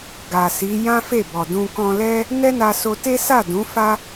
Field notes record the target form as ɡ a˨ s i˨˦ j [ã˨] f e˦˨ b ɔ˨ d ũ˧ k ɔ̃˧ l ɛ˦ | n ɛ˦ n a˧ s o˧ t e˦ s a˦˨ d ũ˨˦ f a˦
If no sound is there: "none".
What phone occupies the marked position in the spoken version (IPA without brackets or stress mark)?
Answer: ã˦